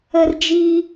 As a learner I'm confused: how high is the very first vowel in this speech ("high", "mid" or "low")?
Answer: mid